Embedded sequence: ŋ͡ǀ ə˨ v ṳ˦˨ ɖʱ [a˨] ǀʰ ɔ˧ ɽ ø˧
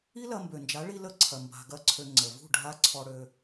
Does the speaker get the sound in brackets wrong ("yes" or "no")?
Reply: yes